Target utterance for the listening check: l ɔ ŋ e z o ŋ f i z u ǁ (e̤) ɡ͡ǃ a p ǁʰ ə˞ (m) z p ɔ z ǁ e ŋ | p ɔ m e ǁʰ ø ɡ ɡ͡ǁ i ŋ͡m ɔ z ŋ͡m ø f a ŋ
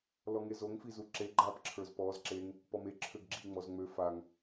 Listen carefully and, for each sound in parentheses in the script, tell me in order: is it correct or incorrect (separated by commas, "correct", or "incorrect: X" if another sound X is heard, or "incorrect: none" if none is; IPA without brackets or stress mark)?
incorrect: e, incorrect: none